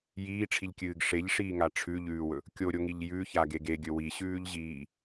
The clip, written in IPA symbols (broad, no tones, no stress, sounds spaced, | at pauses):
j iː ʈ͡ʂʰ i ʎ kʲ ɨː ɡ ʂ e ʎ ʂ iː ŋ a ʈ͡ʂʰ ʉ ʎ ʉː w ɵ | kʲ o ɾʲ o ŋ i ʎ j ʉ ç a ɡ e ɡ e ɡʲ ɵ w i ɕ ʉː ʎ ʑ iː